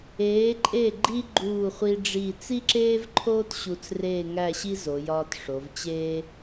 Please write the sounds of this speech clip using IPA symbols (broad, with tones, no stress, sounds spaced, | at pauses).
eː˩˧ ǃʼ e˧˩ ɡ͡ǃ i˧ ɡ͡ǃ uː˧˩ χʷ i˧ ɖ͡ʐ i˧˩ t͡s i˥ ǁ eː˥ v ǃʰ oː˥ t ɕ u˧ t͡s r eː˥˧ ŋ æ˥˧ ɕ i˥ z o˩˧ j ɒː˧ t ʂ o˩˧ v t͡ɕ eː˥